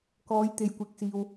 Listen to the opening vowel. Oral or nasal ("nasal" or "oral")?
oral